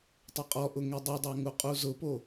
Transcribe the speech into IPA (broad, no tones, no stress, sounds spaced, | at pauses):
tˤ ɘ qʼ ɔ ʔ ʊ ŋ e dˤ o dˤ a ŋ u qʼ u z ʊ p o